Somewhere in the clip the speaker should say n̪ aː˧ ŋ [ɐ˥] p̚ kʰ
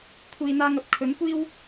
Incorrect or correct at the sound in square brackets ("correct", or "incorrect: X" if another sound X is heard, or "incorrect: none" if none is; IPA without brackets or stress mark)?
incorrect: ɐ˨˥